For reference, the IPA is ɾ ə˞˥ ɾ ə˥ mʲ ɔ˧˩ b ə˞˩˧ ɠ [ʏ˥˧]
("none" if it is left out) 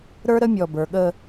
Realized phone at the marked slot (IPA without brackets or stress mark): ə˥˧